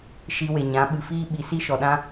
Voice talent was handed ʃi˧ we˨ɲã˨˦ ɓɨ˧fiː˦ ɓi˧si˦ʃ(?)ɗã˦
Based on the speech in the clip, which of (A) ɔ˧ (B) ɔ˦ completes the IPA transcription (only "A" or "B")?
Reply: A